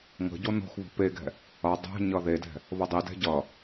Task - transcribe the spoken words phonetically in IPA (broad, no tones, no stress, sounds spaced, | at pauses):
ŋ ə̤ ɟ o n o̤ x β o̤ p e ɡ ɛ̤ | ʌ dˤ ɛ̤ ɲ ʌ ð e d ɛ̤ | β ɤ dˤ i d ɛ̤ ɟ ʌ